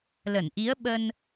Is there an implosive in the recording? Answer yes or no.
yes